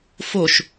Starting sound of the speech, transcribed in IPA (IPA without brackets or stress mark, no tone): f